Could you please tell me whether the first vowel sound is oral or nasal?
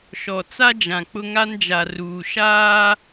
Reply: oral